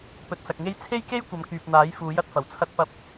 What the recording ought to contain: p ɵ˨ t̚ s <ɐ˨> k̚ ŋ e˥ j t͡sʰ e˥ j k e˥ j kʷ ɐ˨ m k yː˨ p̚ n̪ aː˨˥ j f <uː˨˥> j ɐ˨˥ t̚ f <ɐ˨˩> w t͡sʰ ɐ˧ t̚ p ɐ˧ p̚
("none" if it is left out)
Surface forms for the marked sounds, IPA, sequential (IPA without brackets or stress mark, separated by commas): ɐ˨, uː˨˥, ɐ˨˩